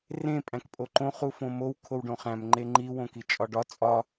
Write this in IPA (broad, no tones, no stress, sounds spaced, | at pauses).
r ẽ pʼ æ̃ k pʼ o ǃ õ χ u f õ m o w kʰ o w ɖ õ χ æ̃ m ŋ͡ǃ e ŋ͡ǃ i w õ k i t͡ʃʼ ɒ ɖ ɒ t͡sʼ ɒ